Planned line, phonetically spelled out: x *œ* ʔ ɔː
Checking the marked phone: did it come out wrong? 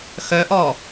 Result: no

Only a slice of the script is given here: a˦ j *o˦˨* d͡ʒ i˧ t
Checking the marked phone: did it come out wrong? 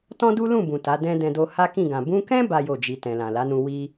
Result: no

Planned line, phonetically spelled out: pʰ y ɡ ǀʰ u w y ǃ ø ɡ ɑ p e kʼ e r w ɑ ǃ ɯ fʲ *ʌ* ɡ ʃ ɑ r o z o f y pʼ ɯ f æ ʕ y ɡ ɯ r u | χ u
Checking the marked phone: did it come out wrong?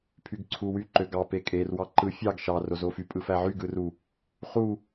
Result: yes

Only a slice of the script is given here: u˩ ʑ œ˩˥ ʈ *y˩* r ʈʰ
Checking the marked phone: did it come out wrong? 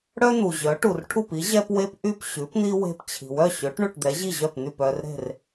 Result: yes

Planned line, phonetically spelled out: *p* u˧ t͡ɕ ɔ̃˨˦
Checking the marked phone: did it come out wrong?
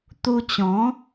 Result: yes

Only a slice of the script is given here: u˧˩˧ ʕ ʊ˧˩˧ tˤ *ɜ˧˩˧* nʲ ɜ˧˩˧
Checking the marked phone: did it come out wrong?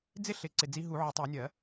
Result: no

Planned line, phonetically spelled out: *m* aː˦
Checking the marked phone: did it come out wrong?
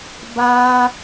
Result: yes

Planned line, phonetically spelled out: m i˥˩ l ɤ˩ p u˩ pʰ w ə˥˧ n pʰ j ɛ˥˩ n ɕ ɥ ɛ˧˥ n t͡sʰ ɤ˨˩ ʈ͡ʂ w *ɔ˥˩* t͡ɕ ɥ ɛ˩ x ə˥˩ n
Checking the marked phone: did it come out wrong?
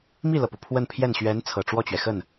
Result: no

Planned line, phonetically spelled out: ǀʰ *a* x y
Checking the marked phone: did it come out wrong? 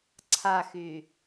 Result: no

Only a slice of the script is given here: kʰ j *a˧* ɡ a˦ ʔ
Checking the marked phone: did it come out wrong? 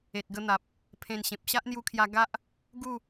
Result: no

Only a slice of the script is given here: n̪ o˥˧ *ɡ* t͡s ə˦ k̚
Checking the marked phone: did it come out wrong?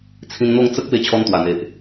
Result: yes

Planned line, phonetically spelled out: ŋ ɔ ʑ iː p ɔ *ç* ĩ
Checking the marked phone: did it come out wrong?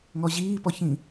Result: no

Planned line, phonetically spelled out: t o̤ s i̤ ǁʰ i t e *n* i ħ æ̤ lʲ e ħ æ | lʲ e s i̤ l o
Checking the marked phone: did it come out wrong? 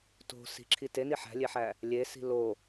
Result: no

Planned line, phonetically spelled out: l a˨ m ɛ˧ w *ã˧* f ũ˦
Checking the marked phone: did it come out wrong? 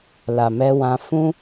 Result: no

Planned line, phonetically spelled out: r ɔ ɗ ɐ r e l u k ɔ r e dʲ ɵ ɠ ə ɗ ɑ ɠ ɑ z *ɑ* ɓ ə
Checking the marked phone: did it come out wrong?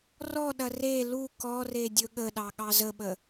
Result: yes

